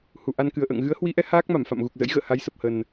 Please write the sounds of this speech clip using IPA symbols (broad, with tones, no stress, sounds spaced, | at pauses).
h u˨˩ ʔ a˧ n k ɨ˨˩ ə̯ ʔ ə̰ː˧˨ ŋ ɣ ɨ˨˦ ə̯ h w i˨˦ ʔ ɛ˨˦ h aː˦˥ k̚ m a˧˩ m f a̰˧˨ m ɣ u˨˩ k̚ z ə̰˧˥ j ɣ ə̰ː˧˨ h a˨˦ j s ə˨˩ p̚ h ə˨˩ n